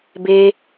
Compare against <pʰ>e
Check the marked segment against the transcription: incorrect: b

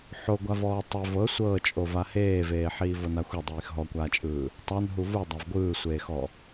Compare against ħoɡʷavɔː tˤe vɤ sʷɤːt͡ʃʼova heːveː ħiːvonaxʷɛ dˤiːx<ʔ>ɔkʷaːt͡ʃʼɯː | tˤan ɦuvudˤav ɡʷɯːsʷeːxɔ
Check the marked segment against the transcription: incorrect: ɦ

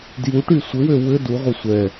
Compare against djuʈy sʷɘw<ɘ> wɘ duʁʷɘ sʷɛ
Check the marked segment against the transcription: incorrect: ø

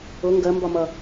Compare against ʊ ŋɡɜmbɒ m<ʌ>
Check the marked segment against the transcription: correct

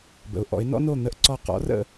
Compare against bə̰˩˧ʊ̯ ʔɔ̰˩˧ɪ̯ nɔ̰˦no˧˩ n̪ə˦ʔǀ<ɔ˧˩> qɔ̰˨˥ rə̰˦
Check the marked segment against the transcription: correct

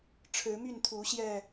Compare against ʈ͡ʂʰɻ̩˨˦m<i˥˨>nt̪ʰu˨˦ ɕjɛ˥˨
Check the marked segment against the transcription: incorrect: y˥˨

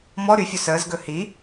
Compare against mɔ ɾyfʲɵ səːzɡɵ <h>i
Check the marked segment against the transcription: correct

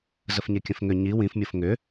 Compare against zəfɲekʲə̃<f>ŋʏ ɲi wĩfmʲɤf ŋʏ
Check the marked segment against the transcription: correct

